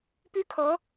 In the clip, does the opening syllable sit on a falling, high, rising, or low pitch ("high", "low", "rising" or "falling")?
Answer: high